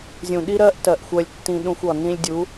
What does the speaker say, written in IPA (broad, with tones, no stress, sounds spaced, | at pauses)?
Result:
zʲ ũ˨ ɗ i˦ ɾ ɜ˦ ʔ t ɜ˨ ʔ xʷ ɜ˧ lʲ tː ĩ˧ ɗ ũ˧ xʷ ɒ˨ n ĩ˧ lʲ dʲ u˨˦